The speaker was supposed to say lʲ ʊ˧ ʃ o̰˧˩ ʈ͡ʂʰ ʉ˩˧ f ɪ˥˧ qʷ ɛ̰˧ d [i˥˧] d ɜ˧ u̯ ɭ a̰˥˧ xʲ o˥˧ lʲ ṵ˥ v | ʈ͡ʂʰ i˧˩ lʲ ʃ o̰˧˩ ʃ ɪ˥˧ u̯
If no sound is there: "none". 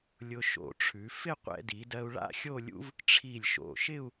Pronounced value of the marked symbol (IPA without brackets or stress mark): i˩˧